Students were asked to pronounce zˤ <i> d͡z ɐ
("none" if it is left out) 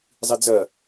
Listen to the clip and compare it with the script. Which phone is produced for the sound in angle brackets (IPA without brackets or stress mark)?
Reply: i